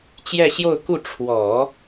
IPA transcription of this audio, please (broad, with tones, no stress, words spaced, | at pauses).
t͡ɕjɛ˥˧ɕjo˥˧ʊ̯ku˥˩ ʈ͡ʂʰwɔ˨˩˦